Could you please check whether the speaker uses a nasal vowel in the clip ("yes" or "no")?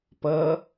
no